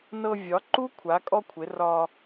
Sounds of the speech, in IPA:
n ɤ˧ vʲ ɒ˨˥ ǃ u˥ kʷʰ a˨˥ kʼ ɔ˥ kʷʰ ɪ˨˥ r ɒ˧

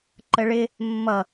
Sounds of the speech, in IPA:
ǃ ə ɭ ɪ | mː ʌ

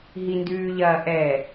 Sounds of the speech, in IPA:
ɦ i n d ʉː ʎ ɐː ʔ ɛ

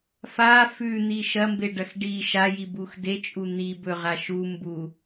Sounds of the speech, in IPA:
f a f ʉ n̪ i ʃ ɐ m b e ɖ ɐ x ɖ i ʃ a j i b u x d e t͡ʃʼ u n̪ i b ɵ ʁ a ʃ u m b u

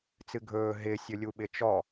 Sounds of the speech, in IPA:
t͡s ɨ ɡʱ ɵː ɦ ɪ sʲ ɵ lʲ u ɓ ɪ t͡ʃ ɔ

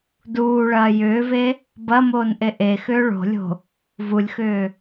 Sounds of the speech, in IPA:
d uː ɭ ɐː j ʏː v e | b ɐ m oː n ʔ e ʔ e x ʏː ɭ o̤ lʲ o̤ | v u lʲ x ʏː

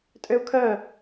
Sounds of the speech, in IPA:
tʼ ø u̯ kʰ œ

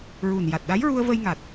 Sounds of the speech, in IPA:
ɹ u˨˩ n j a˨˩ t̚ ɗ a˧˥ j ɹ u˧ ə̯ v ə˧ j ŋ a˨˩ t̚

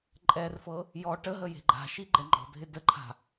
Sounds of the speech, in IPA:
ǃʼ ɛ r f ɤ | j ɔ ʈ ə ɦ ə j e̤ ɡ͡ǃ a̤ ʃ i ɡ͡ǃ ɛ ŋ͡ǃ ɔ̤ dʱ ɪ d ə ǃʰ a̤

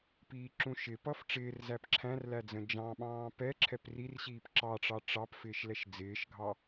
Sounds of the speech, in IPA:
p iː ǁ ũ ʃ ɪ p ʌ f ʈ͡ʂ ɪː r z æ p ǁʰ æ̃ r l æ d͡z ə̃ d͡ʒ ɑ̃ ɓ ɑ̃ː p ɛ ǁʰ ɛ p r i r ɕ iː p ǁ ɑ ʈ͡ʂ ɑ ʈ͡ʂ ɑ p f ɪː ʃ l ɛ ʃ d͡z ɪː ʃ ɡʱ ɑ

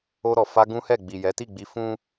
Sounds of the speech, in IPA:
o˧ ɾ ɔ˨ f a˧ ɡ ũ˦ h ɛ˦˨ ɡ͡b i˨ j ɛ˨˦ t i˦˨ ɡ͡b i˧ f ũ˦

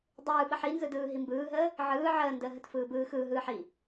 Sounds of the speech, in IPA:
dˤ ɯː ɓ ə ħ i n z ɯ d ɯː ɦ i m b ɯː ɦ əː | ʕ ɯː ʕ əː n d əː ɦ ə t f ɯː b ɯː x ɯː ɦ ɯː ħ i

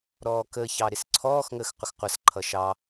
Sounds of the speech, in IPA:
ɾ ɔː k ə ç ɑ ɾ ɪ s ǀʰ ɔː x ŋ əː x qʷ ɪ x qʷ ʌ s ǃʰ ʌ ʃ ɑ

